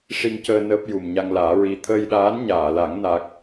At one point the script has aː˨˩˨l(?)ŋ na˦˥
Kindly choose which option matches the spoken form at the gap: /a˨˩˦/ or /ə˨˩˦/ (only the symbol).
a˨˩˦